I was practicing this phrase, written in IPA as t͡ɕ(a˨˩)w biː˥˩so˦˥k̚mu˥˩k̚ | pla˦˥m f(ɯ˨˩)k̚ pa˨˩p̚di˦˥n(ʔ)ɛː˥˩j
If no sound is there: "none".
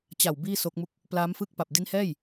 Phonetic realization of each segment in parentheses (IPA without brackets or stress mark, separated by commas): a˨˩, ɯ˥˩, h